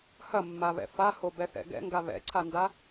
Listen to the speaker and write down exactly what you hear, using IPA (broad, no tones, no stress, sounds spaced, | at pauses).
h ɐ mː a β ɛ̰ f a h o b ɛ θ ɛ̰ ɡ ɛ̰ ŋ ɡ a β ɛ̰ ǀʰ a n d a